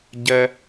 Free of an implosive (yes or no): yes